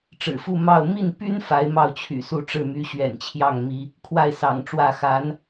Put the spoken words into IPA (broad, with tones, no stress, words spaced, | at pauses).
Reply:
ʈ͡ʂɻ̩˨˩fu˥˧ mɑ˥˧ʊ̯ mi˥˩npy˥n fa˧˥ɪ̯mɑ˥˩ʊ̯t͡ɕʰy̰˨˩su˥˧ ʈ͡ʂɻ̩˥˩my˧˥ɕɥɛ̰˨˩nt͡ɕʰjɑ˥˩ŋ mi˧˥ | kʰwa˥˩ɪ̯sɑ̰˨˩ŋʈ͡ʂwä˥˩ xa˧˥n